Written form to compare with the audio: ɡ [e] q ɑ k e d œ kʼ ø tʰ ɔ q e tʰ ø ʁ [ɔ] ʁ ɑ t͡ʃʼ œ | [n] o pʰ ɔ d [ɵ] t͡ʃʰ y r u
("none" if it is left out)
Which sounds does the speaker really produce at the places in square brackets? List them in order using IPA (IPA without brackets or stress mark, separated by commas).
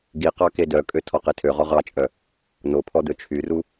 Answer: i, ɔ, n, ɵ